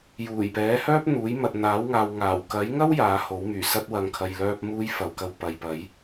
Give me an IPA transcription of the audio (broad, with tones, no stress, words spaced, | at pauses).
juː˨˩jpɛː˨˥hœː˥p̚ n̪uː˨˥jmɐ˨t̚n̪aː˨˥wŋaː˨w ŋaː˨˩wkɐ˨˥jŋɐ˥w jaː˨˥ho˨˥wmyː˨˩sɐ˥t̚ wɐ˨ŋkʰɐ˨jlœː˧p̚muː˧j fɐ˨wkɐ˧w pɐ˨jpɐ˨˥j